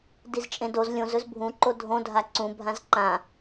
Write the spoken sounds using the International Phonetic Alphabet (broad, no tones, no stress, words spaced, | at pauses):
dizt͡ʃʼẽdoz lʲõz ɵzbʱũ ǃodʱõdʱa ǀũbʱãz ǃã